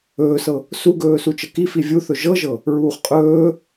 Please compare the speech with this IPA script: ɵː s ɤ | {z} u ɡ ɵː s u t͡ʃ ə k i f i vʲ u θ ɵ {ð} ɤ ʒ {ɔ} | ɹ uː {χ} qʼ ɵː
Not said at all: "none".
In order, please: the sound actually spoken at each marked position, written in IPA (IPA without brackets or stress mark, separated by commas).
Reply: s, ʒ, ɤ, χ